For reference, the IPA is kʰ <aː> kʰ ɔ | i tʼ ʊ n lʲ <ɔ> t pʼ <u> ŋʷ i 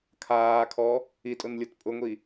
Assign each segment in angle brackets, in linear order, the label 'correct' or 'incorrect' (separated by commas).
correct, incorrect, incorrect